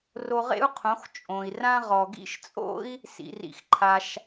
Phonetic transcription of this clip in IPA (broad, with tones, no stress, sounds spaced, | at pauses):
r o˧ ʁ ḛ˥ u̯ qʰ õ˩˥ x t͡ʃʼ õ˩ i̯ r ã˥ ʁ ɔ˩ ɡ ḭ˥ ʃ t͡sʼ o̰˥ i̯ | s ḭ˩ r ḭ˩ x ǃʰ a˩ ʃ